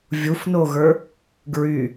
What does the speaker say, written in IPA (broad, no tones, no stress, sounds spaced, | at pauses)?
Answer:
vʲ u f n o ɣ ə˞ | ɡ ɹ y